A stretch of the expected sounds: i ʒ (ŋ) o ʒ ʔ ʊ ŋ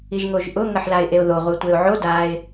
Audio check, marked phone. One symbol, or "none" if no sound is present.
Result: ŋ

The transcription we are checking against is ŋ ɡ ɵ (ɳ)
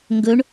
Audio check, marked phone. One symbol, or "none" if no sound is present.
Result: ɳ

